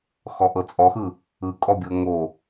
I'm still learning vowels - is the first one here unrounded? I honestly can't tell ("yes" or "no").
no